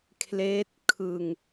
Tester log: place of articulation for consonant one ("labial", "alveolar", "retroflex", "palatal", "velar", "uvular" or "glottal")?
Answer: velar